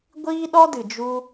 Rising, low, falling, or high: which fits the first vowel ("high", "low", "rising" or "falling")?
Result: high